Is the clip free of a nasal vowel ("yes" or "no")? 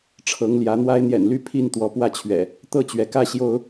yes